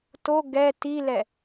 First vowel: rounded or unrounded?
rounded